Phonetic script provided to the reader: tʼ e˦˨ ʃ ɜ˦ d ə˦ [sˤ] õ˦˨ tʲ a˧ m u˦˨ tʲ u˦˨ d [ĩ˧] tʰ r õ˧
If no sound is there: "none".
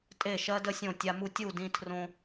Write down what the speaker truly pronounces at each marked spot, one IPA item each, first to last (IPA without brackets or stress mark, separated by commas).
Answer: sʲ, ĩ˧